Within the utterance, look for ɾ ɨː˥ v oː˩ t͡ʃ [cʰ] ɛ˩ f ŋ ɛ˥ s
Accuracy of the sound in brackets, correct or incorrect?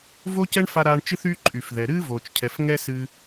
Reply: correct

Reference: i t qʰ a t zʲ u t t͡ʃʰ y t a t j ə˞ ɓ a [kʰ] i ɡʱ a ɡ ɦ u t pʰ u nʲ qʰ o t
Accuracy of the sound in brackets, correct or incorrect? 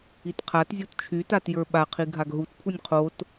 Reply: incorrect: qʰ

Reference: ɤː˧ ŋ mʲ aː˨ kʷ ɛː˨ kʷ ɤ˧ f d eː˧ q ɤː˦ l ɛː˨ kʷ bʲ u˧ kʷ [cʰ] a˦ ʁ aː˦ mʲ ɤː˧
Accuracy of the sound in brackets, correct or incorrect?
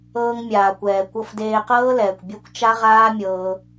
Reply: incorrect: t͡ʃ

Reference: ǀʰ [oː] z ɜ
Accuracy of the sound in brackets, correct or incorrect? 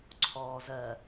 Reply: incorrect: ɔː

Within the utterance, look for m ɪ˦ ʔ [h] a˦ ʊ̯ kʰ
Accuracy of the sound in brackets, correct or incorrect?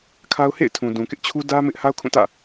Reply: correct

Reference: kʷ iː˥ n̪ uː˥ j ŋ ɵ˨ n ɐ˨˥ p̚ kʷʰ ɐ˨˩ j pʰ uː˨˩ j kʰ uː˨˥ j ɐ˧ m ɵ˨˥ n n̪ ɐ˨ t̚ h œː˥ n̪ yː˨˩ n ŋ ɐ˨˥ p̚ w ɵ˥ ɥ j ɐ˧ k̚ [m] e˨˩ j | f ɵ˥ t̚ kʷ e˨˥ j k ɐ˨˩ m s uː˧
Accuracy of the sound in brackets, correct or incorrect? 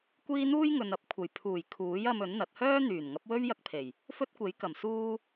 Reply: incorrect: pʰ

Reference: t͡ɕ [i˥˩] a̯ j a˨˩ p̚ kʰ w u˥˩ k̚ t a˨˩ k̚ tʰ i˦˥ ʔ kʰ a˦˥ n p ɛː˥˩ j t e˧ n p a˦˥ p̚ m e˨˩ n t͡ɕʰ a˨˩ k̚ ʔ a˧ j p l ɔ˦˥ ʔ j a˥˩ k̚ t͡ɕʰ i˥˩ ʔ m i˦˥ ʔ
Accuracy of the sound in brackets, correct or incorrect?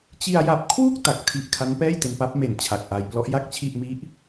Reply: incorrect: i˧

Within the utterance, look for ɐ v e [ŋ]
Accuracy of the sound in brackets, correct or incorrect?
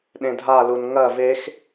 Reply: incorrect: x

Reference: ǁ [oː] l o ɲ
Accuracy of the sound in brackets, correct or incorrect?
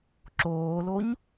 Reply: correct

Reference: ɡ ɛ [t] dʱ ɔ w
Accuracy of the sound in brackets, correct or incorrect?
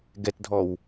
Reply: correct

